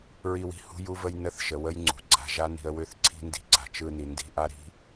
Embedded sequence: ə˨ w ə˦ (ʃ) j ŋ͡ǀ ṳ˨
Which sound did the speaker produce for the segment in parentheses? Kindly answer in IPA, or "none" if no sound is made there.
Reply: none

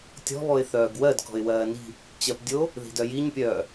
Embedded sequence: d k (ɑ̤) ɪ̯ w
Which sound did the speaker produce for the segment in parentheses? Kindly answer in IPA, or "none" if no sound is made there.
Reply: ɔ̤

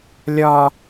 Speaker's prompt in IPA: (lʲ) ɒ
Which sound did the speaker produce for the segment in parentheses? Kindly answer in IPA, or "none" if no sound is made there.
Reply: lʲ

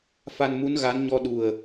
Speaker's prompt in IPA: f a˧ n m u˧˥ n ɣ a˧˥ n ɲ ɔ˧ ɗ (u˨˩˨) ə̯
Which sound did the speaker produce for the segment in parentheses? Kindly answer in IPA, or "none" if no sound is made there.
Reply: u˨˩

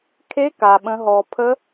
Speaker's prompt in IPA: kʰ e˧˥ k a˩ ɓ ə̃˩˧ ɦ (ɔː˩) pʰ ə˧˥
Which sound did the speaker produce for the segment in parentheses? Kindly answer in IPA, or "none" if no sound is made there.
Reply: ɔː˩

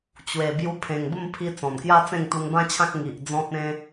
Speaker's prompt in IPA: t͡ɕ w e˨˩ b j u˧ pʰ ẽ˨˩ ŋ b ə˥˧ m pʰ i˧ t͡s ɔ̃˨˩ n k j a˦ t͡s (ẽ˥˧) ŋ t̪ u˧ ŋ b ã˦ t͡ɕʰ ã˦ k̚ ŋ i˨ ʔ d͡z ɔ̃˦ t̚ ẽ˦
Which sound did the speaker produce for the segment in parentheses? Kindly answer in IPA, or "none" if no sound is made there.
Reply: ẽ˥˧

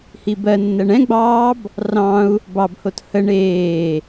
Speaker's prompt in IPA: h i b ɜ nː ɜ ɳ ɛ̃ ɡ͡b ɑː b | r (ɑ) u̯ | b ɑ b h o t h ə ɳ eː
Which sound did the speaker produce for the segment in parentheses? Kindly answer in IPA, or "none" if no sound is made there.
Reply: ɑ̃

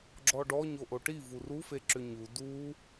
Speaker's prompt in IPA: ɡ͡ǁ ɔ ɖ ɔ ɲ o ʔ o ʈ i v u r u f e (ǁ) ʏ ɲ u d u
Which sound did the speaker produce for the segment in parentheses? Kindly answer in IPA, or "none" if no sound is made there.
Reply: ǁ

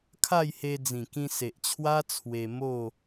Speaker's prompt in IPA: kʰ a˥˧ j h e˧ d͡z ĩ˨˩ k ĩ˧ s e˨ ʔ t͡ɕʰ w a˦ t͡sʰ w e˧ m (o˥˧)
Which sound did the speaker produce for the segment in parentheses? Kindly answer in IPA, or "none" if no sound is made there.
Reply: o˥˧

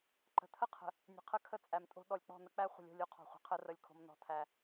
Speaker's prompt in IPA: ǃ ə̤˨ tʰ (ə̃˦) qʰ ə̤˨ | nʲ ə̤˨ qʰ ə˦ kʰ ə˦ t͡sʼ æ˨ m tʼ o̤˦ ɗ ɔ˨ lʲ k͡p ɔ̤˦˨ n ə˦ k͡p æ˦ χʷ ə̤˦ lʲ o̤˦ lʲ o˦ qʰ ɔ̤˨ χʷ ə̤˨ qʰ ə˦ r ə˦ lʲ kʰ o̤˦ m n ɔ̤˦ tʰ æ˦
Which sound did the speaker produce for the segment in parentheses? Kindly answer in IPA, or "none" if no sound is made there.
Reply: ə˦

